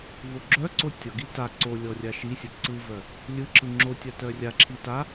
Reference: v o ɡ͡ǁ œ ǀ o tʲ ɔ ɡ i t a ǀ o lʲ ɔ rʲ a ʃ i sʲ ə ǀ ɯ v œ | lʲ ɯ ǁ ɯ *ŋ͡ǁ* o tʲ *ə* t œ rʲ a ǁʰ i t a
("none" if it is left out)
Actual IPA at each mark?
ŋ͡ǁ, a

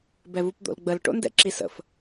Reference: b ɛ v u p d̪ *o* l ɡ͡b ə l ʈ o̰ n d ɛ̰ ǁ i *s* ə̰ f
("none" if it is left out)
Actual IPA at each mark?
o̰, s

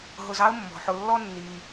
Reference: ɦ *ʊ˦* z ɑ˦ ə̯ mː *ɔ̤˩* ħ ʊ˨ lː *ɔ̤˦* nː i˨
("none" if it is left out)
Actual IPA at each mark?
ʊ˨, ɔ̤˩, ɔ˦

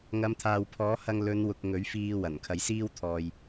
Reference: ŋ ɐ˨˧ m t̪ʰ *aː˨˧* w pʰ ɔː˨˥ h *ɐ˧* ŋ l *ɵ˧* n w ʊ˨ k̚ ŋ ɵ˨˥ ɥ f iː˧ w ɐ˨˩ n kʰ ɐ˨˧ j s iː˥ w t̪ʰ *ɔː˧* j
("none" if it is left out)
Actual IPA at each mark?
aː˨, ɐ˧, ɵ˨˧, ɔː˧

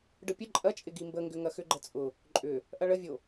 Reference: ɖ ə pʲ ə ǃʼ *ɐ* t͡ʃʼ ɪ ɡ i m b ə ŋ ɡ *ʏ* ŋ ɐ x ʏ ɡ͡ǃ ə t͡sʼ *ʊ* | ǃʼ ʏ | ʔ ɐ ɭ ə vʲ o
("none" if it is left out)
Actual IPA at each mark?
ɐ, ʏ, ʊ

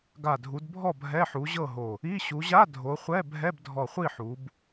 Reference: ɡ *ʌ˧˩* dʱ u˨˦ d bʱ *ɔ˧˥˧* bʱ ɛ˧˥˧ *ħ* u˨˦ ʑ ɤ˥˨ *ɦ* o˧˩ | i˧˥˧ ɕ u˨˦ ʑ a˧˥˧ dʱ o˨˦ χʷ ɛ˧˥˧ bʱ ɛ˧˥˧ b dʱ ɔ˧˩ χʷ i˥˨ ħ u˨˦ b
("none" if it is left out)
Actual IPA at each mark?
a˧˩, ɔ˥˨, ħ, ɦ

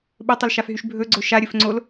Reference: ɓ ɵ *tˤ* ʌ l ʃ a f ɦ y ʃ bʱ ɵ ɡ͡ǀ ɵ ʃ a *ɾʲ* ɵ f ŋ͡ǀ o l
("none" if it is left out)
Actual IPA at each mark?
tˤ, ɾʲ

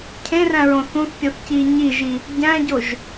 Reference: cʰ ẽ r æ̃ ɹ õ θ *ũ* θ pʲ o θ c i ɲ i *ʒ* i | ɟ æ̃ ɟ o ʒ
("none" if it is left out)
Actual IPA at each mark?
ũ, ʒ

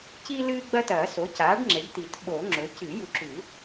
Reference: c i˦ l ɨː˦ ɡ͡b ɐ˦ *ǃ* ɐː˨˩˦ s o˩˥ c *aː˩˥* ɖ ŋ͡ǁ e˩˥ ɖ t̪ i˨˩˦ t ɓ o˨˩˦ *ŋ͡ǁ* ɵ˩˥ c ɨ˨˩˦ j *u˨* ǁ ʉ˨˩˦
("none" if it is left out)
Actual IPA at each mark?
t, aː˩˥, ŋ͡ǁ, u˨

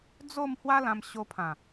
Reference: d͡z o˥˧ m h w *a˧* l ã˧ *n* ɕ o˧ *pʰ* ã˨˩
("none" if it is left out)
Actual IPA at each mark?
a˦, m, pʰ

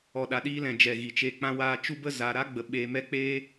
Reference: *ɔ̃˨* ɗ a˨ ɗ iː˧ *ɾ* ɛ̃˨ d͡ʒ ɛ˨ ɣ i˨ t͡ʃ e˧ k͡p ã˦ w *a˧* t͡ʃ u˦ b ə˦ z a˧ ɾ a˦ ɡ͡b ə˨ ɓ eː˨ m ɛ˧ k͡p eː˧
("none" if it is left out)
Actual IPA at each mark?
ɔ˨, l, aː˧

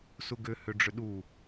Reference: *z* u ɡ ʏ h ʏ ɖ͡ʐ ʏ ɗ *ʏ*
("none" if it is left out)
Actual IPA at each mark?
s, u

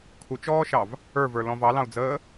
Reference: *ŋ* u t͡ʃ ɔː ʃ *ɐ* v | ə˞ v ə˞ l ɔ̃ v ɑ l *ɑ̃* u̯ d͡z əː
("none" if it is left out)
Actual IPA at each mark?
kʰ, ɑ, ɑ̃

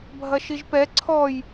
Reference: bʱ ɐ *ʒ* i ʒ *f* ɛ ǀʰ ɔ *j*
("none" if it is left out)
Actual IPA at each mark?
ʃ, p, j

